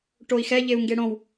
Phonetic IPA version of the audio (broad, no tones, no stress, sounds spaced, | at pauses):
ʈ o i̯ x ɛ ʎ e u̯ ŋ ɡ e ɽ õ w